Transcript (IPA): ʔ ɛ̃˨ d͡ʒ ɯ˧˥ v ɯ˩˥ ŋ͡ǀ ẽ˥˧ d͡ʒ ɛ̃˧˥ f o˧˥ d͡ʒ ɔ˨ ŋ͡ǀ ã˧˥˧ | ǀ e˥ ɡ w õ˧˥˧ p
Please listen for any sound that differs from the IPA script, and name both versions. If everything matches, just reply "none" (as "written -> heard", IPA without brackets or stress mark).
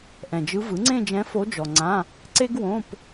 none